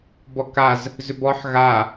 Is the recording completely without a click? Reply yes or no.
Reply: yes